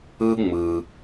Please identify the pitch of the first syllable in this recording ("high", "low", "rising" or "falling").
high